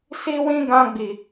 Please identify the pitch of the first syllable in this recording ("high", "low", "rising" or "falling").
high